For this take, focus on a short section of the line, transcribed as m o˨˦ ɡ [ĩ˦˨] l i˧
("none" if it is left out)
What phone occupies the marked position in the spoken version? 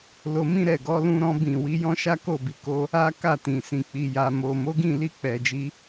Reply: ĩ˦˨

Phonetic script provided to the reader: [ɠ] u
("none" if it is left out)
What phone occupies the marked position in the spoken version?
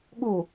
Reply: ɠ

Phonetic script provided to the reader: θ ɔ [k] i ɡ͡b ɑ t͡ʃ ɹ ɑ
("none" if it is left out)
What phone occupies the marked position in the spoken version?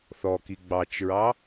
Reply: k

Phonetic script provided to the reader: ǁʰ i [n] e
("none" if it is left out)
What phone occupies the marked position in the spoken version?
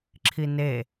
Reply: n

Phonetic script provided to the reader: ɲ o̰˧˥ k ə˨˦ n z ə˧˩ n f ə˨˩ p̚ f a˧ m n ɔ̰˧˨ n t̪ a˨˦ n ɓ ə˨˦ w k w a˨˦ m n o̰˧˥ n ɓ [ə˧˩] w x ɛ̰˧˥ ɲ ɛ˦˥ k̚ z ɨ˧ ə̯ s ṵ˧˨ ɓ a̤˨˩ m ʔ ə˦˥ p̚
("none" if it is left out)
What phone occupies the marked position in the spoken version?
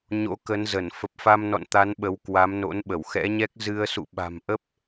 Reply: ə˧˩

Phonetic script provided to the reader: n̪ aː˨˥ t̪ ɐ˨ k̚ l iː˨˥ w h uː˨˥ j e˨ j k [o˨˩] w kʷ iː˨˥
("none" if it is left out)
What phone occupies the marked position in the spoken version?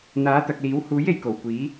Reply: o˨˩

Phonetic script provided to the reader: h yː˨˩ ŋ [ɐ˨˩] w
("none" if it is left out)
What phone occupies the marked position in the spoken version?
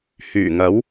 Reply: ɐ˨˥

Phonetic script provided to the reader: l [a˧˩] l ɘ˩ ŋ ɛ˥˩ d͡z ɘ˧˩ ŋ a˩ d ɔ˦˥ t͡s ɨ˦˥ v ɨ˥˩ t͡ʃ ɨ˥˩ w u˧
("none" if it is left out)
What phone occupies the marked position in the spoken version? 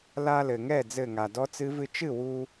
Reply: a˧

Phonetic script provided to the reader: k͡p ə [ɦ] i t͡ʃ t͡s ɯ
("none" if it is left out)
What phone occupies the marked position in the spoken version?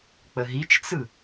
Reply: ɦ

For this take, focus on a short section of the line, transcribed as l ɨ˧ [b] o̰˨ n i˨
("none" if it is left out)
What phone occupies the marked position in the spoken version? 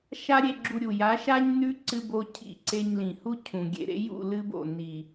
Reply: b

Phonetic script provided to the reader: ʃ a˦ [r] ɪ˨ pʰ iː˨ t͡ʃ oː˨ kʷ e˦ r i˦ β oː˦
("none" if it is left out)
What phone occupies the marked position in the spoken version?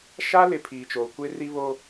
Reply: l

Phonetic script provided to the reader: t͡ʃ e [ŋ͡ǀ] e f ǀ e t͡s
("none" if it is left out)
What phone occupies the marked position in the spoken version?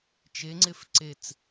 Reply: ŋ͡ǀ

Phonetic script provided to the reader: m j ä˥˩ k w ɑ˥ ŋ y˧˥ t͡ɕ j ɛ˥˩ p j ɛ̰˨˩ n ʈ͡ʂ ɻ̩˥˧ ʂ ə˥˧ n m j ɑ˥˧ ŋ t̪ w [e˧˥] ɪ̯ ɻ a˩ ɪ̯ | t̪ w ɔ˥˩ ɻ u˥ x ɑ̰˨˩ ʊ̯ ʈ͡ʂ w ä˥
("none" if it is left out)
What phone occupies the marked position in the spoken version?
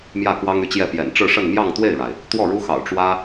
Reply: e˥˩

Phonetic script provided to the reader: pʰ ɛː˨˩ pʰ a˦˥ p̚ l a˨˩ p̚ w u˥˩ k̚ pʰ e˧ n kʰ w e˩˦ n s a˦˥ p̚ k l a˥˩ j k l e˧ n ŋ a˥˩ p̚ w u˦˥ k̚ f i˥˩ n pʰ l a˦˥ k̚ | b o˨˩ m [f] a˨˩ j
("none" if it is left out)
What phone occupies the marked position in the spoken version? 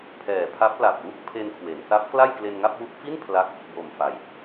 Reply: f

